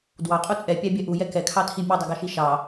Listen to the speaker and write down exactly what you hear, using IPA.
d w ɑ qʼ u t͡sʼ ɛ pʲ æ bʲ ɛ ʔ u j ɛ k ɛ kʰ ɑ tʰ i mʲ u dˤ i ɡ ɑ ʃ i ʃ ɑ

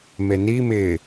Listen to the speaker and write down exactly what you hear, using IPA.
m e n i m ɪ

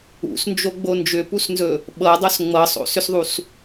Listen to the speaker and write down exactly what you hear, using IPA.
ṵ s n d͡ʒ o ɡ͡b o n d͡ʒ ʏ p u s n z ɵ | ɓ ɤ dˤ o s ŋ͡m ɤ sˤ o̰ s ʏ s ðˤ u s

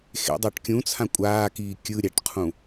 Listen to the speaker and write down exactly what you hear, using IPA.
x ḛ dˤ a ʈ kʲ ũ t͡sʰ ã kʷʼ aː k iː kʲ ɯ ɾʲ a ʈ qʰ ũ

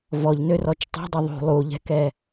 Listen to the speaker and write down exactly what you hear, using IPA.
v ɔ ʎ n ø r ɔ t͡ʃ tˤ ɛ̤ dˤ ɛ ðˤ ṳ lˠ u ʎ ɛ̤ k ɛ

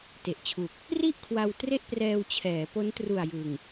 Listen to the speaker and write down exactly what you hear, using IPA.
t e˨˩ ʔ t͡ɕʰ u˨˩ k̚ | r i˥˩ ʔ kʰ w a˧ w t r e˥˩ ʔ p r ɛː˧ w t͡ɕʰ ɛː˩˦ p o˦˥ n t r u˨˩ a̯ j ɯ˨˩ ŋ

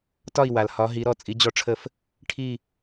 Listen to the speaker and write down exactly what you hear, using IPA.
t ɒ˥˧ i̯ w a˨ l h ɒ˧˥ ɦ i˧˥ ɾ ɔ˥˧ t͡sʼ i˧˥ d͡ʑ ɔ˥˧ ʈ͡ʂʰ ə˥˧ f | ʈʰ i˥˧

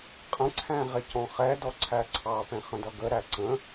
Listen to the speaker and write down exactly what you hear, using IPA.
qʼ ə̃ ǀʰ æ̃ ʁ ɪ c ɔ̃ χ ɛ d ɔ ǀʰ æ ǀʰ ɑ p ɛ̃ χ ə̃ d ʌ ɡ ə ɾ æ ǀ ə̃

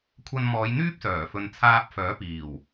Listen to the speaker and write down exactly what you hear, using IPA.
kʷʰ ɐ˧ n m ɔː˨˧ j n̪ yː˥ p̚ s œː˨˩ f ɵ˨ n t͡sʰ aː˧ p̚ f œː˨˥ p iː˨˩ w

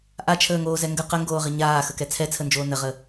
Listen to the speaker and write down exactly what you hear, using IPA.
ʔ a t͡ʃʰ əː ŋ oː z ɛ ŋ ɡ ə q ə ŋ ɡ oː ʁ ɪ ɲ aː x ə k ɛ t͡sʰ ɛ t͡sʰ ə n d͡ʒ oː n ə ʁ ə

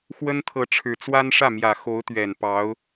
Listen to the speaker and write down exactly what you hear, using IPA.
x w ə˥ n t̪ʰ ɤ˧˥ ʈ͡ʂʰ ɻ̩˨˩ t͡s w a˥ n ʂ ä˥˩ m j ä˨˩ x o˧˥ ʊ̯ t̪ ɥ ɛ˨˩ n p ɑ˧˥ ʊ̯

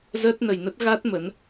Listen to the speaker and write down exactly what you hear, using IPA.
z əː˦˥ t̚ n ə˧ j n ə˦˥ t̚ ɣ a˦˥ t̚ m ə˨˦ n

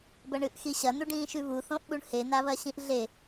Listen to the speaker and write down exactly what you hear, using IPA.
b ɐ ɳ ɨ ʔ x i ɕ ɐ n̪ u ɖ ĩː ʃ ʉ β u θ õ ʔ ɓ u ɳ h e n̪ a β ɐ ɕ ĩ ʔ ɮ e

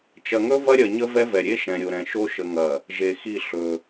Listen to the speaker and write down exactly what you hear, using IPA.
t͡ʃ ɐ˨ ŋ ɵ˦ v ɐ˦ ɾʲ ɐ˨ ɲ ə˦ v ɛ˦ v ɛ˨ ɾʲ e˦ ʃ ɛ̃˨ ɾʲ o˨ ɾ ɛ̃˨ ʃ o˦ ʃ ə˦ ŋ ɐ˦˨ | ʒ e˨ x i˦˨ ɬ ɵ˦

